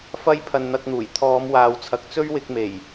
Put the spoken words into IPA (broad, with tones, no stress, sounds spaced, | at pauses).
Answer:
f ɐ˥ j pʰ ɐ˧ n n̪ ɐ˧ k̚ n̪ uː˨˩ j t̪ʰ ɔː˨˧ m w aː˨ w t͡sʰ ɐ˨ k̚ t͡s ɵ˥ ɥ w ɪ˧ k̚ m e˨˩ j